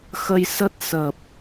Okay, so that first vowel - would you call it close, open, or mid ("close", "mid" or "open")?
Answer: mid